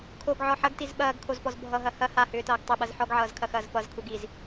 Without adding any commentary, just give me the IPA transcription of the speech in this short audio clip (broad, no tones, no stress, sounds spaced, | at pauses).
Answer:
kʰ o ɡ ʕ ɔ ħ ɐ ɡ t i z ɓ ɐː ɡ kʰ o z p ɔ z bʱ ʌ ɦ ɐ h ɐ h a h ʏː t ʌː ɡ tˤ ʏ ɓ ɐ z ħ ɔ ɡ ʕ ʌː z kʰ ɐ x ɐː z p ʌ z kʰ u ɡ i z